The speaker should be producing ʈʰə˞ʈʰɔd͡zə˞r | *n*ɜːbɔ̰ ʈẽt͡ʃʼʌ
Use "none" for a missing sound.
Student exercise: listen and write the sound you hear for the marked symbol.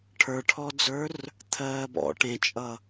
t̪ʰ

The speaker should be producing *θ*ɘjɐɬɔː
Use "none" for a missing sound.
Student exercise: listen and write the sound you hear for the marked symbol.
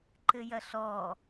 ǃ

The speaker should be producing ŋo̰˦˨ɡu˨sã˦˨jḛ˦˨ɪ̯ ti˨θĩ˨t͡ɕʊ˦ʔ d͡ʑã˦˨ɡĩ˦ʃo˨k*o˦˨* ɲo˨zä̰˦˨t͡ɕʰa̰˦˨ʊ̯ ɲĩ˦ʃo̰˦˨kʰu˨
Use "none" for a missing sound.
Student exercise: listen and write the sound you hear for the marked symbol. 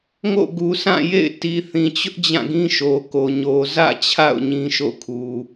o˨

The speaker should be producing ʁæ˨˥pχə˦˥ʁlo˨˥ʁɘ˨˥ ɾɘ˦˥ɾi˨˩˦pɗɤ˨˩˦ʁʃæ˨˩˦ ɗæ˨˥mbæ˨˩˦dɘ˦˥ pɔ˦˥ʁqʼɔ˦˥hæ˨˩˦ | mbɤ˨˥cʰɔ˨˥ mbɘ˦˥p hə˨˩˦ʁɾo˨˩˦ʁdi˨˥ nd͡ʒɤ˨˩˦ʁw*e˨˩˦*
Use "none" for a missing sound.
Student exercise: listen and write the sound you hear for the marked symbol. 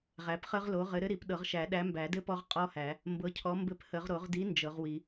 i˨˩˦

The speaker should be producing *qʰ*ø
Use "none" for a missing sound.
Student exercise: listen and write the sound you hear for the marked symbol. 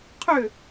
qʰ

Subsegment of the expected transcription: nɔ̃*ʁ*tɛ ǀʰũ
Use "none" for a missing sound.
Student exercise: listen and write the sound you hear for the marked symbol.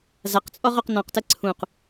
q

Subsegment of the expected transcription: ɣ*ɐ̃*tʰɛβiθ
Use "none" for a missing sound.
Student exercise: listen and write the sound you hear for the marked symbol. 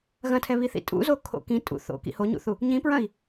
ɐ̃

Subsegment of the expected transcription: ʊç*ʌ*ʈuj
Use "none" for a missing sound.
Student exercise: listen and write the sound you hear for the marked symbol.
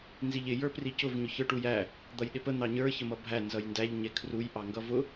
ə˞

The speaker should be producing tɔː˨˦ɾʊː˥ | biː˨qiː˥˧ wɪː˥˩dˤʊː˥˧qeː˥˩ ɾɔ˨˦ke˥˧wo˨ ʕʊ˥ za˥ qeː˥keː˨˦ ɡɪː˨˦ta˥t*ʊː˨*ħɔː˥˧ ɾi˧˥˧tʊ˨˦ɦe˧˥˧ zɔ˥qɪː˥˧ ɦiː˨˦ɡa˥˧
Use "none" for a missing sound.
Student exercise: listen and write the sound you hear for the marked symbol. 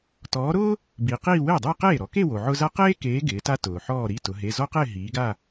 ʊː˨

